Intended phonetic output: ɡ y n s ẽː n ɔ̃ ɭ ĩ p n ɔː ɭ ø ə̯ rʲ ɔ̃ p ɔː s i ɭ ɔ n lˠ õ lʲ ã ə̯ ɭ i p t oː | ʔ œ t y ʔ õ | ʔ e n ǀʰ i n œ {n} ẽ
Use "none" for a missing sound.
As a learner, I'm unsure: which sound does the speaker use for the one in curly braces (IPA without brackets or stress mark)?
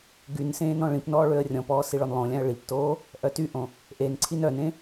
n